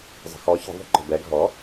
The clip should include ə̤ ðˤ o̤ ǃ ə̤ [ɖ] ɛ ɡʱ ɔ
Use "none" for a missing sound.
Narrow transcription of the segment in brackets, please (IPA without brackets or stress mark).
b